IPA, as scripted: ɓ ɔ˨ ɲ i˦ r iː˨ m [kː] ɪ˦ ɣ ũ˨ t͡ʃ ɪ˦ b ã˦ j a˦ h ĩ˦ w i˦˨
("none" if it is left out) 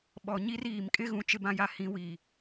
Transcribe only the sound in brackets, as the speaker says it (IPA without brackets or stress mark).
kʼ